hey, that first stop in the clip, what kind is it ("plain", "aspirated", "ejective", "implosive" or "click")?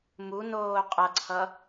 ejective